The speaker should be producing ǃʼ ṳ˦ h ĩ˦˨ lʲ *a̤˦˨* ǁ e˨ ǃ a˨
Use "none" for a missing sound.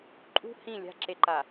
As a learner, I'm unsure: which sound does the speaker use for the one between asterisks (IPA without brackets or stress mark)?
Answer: a̤˦